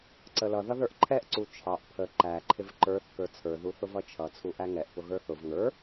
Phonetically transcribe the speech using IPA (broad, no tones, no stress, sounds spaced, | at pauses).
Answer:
ǀ ə l ʌ ð ʌ ð ə˞ ʔ ǃʰ ɛ ʔ ǀ u t͡ʃʰ ɑ ʔ pʰ ə ǃ æ ǃʰ ɪ v ǃ ə˞ θ k ə˞ t͡sʰ ə˞ ð u θ ʊ v ʌ t͡ʃʰ ʌ t͡sʰ u ʔ æ ŋ ɛ ʔ p ʊ ɣ ə˞ θ ʊ v ŋ ə˞